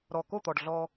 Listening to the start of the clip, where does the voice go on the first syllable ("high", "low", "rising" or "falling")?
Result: low